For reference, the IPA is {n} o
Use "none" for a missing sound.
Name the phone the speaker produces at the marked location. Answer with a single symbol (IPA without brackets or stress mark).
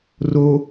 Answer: r